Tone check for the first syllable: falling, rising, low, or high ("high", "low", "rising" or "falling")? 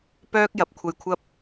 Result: high